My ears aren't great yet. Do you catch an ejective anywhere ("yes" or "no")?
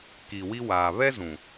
no